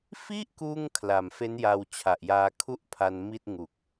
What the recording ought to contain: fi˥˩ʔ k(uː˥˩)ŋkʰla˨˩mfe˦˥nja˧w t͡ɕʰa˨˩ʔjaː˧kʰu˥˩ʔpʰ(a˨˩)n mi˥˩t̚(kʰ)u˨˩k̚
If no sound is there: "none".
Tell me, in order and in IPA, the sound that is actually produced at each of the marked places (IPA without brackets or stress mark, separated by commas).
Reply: uː˥˩, a˧, ŋ